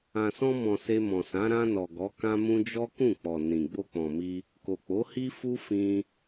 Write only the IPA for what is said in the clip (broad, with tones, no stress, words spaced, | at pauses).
ã˨sɔ̃˧mɔ̃˨ se˧mɔ̃˨sã˨˦ ɾã˧nɔ˨ ɡɔ˨˦kã˦mũ˦ d͡ʒɔ˦ kũ˦˨k͡pɔ˨ nĩ˨ ɡ͡bo˧k͡pɔ̃˨mi˧ | ko˨k͡po˨˦ hi˦fu˦ fĩ˧